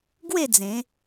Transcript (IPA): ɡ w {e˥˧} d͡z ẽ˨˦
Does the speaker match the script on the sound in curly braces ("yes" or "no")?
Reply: yes